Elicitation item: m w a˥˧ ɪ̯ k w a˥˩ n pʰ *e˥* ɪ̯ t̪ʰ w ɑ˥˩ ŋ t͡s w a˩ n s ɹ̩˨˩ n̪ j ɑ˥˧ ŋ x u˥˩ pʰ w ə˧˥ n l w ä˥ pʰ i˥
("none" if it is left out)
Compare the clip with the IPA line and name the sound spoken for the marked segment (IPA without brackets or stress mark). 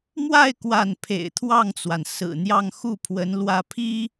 ḛ˨˩